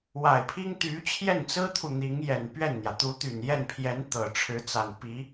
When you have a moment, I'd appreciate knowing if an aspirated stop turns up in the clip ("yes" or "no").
yes